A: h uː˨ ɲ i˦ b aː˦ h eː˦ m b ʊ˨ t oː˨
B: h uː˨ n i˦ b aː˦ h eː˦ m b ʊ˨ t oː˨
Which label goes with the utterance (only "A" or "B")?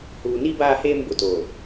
B